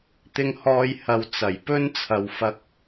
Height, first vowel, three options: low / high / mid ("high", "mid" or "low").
high